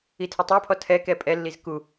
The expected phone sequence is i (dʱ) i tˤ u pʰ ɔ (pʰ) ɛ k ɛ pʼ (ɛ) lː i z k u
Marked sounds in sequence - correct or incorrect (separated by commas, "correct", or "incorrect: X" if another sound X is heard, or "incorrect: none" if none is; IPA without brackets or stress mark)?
incorrect: tʰ, incorrect: tʰ, correct